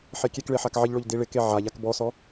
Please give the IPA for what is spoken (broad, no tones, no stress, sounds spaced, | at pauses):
ħ e kʲ e k ɭ e ħ a k ʕ ɪ ʎ ɭ o ʎ d i ɭ ɪ k e ʕ a ʎ a k b ɔ s ɔ